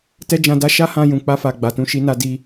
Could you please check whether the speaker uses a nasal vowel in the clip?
yes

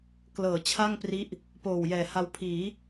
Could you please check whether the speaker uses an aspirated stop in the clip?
yes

